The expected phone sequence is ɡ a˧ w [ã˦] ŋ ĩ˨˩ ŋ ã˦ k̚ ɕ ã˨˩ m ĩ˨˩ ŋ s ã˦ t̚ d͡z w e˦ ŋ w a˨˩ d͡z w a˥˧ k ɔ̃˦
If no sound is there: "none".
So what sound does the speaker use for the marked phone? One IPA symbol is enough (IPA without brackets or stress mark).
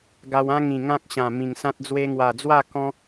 ã˦